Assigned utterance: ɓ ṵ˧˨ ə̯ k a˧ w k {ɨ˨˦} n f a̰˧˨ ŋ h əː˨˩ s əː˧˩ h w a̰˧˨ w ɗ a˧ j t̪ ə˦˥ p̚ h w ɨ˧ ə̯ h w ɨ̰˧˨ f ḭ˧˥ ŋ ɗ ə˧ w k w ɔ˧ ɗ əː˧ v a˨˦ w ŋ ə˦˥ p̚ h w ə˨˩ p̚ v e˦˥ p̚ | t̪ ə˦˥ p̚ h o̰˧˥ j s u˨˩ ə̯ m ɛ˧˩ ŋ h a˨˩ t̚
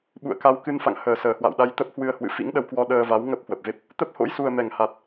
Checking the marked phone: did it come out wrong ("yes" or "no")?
yes